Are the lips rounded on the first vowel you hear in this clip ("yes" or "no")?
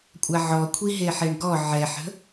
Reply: no